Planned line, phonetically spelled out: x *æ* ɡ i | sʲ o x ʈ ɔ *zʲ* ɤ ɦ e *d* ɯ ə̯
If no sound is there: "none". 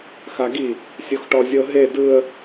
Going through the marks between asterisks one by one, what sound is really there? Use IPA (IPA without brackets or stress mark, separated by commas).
a, zʲ, d